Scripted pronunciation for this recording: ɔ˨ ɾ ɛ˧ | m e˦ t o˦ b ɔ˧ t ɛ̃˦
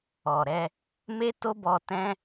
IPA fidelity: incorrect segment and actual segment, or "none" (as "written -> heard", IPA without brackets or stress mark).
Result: none